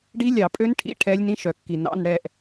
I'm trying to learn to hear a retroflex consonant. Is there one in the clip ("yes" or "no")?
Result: yes